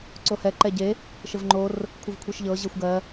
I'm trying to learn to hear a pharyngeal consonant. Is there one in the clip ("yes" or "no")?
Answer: no